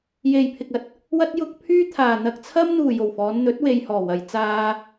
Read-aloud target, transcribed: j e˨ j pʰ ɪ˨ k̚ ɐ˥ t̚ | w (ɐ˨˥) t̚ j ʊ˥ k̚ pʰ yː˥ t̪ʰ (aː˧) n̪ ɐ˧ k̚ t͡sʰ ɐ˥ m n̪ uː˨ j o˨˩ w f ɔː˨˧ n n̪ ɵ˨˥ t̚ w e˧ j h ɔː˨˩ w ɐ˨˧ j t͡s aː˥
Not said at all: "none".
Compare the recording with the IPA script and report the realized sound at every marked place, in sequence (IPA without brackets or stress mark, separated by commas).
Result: ɐ˥, aː˨